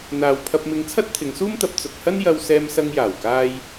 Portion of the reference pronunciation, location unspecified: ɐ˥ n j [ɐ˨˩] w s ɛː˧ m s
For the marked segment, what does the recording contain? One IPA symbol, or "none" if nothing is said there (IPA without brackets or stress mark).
ɐ˧